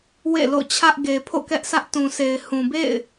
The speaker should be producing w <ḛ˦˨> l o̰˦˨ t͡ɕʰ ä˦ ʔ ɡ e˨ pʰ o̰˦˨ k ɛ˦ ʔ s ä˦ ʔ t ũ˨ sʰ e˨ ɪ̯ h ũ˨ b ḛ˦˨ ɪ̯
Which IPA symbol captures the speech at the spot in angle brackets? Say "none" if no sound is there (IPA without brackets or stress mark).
ḛ˦˨